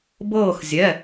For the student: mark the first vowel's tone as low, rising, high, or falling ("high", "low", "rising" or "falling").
falling